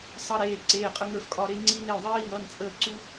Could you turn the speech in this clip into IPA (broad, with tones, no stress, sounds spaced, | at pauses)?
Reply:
sˤ ʌ˧ ɾ eː˩˧˩ ǀ eː˩˧˩ qʼ ə˧ ŋ ə˞˧˩ f kʼ ɒ˧˩ ɾ e˧ ŋ͡ǀ iː˧ n e˩˧˩ o̯ ðˤ iː˧ ŋ ʌ˩˧˩ n t͡sʼ əː˧˩ ǀ u˧